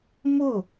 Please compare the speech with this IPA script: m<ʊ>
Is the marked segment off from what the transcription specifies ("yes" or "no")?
no